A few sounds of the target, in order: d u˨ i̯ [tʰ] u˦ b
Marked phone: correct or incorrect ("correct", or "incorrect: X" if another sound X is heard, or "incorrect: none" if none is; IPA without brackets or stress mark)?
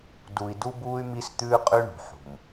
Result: incorrect: d